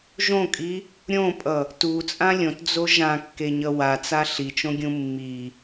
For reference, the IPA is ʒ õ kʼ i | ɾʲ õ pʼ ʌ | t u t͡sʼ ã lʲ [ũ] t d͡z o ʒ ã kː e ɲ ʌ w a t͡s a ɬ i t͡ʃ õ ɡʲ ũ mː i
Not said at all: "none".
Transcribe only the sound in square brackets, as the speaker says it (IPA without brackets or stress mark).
õ